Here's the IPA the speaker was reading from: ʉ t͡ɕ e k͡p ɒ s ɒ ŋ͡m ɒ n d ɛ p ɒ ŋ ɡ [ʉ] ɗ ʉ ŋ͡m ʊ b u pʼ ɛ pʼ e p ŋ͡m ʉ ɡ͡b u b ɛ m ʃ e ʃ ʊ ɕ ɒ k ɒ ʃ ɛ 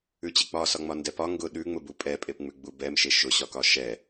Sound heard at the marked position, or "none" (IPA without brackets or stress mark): ʊ